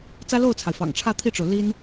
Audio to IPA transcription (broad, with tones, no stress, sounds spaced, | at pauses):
t͡s ä˥ l o˥˩ ʊ̯ t͡sʰ a˩ ɪ̯ f ɑ̰˨˩ ŋ ʈ͡ʂʰ ä˥˧ t̪ʰ i˥˩ ʈ͡ʂ o˩ ʊ̯ l i˥ n